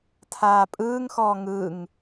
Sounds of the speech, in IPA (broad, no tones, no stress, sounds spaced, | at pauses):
tʰ aː pʼ ɯː ŋ x ɔː ŋ ɯ ŋ